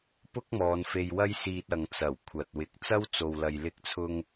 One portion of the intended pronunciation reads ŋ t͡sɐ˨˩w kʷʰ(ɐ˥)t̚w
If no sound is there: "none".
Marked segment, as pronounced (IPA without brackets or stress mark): ɐ˨